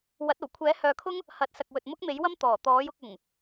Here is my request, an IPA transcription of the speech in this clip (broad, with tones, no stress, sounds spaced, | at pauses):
w ɐ˨˥ t̚ o˨˩ w kʷʰ ɛː˨˥ h œː˨ kʰ ʊ˥ ŋ | h ɐ˨˥ t̚ s ɐ˨ k̚ w ɵ˨ t̚ m ʊ˥ k̚ m e˨˥ j w ɐ˥ m t̪ ɔː˨˩ t̪ ɔː˨˥ j ʊ˨˥ k̚ ʊ˨˩ ŋ